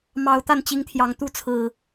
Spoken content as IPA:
m ɑ˨˩ ʊ̯ t̪ a˥˨ n t͡ɕ i˨˦ ŋ t̪ʰ j ɑ˨˩ ŋ t̪ u˥˨ t͡sʰ ɹ̩˨˩

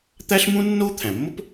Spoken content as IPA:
t̪ æ˥ ɬ m ũ˥ nː o˥ t̪ʰ æ̃˩ mː o˥ p

